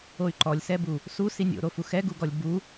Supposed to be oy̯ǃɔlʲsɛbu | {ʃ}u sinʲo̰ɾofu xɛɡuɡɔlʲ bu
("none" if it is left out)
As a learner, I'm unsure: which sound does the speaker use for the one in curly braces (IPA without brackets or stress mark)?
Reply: s